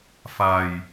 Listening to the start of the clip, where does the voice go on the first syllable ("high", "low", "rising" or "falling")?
low